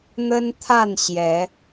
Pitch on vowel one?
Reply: high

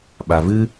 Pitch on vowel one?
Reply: low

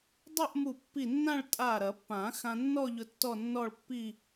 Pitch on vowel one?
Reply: falling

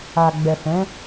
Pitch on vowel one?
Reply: low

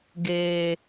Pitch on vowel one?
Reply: low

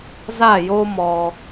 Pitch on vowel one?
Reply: falling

